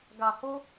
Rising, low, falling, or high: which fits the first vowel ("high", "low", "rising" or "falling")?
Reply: low